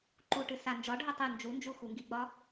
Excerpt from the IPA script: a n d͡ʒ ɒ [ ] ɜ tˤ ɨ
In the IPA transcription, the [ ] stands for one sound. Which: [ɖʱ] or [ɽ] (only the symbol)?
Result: ɖʱ